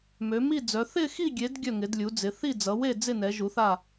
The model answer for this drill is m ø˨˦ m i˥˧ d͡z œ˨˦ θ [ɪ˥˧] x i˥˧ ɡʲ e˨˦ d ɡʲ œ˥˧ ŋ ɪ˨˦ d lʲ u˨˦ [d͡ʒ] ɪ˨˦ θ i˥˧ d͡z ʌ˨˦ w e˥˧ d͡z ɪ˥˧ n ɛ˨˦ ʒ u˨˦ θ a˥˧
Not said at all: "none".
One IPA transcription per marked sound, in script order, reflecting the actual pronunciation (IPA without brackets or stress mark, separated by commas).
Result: ɪ˥˧, d͡z